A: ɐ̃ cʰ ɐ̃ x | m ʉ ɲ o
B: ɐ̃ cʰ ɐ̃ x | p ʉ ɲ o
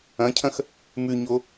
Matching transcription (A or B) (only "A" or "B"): A